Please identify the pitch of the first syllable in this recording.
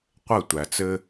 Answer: falling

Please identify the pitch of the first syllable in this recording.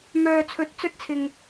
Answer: low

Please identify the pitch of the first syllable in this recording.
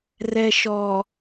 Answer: low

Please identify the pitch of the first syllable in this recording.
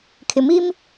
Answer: low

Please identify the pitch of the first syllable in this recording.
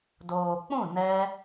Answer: low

